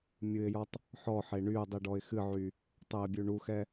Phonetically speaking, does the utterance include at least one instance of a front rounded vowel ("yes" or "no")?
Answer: yes